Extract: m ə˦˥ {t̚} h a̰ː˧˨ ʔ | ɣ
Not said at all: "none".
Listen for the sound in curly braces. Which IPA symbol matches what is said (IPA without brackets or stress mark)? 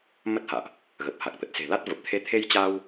t̚